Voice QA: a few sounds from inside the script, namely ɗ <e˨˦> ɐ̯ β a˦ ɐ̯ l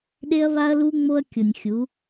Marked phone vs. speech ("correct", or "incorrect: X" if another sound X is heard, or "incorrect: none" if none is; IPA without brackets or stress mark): incorrect: e˦